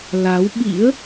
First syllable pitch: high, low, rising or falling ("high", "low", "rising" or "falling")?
rising